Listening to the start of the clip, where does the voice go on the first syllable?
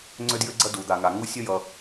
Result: high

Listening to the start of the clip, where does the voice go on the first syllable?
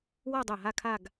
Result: falling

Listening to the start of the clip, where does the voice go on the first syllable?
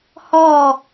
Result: falling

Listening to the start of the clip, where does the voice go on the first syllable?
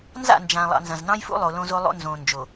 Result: falling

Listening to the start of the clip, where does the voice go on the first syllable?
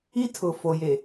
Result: high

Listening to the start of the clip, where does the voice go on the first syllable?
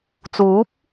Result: rising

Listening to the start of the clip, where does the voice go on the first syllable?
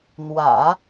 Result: low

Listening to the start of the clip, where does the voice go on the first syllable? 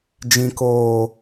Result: low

